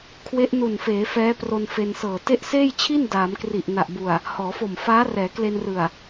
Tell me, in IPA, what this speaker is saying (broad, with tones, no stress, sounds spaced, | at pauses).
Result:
kʰ w e˦˥ ʔ n u˨˩ n f eː˩˦ f ɛː˦˥ p r o˧ n f e˧ n s ɤː˨˩ t e˦˥ ʔ s eː˥˩ j t͡ɕʰ i˥˩ n d aː˩˦ m k r i˨˩ ʔ n a˨˩ ʔ b u˨˩ a̯ | h ɔː˩˦ f o˨˩ m f aː˦˥ r ɛː˩˦ k l e˧ n r ɯ˨˩ a̯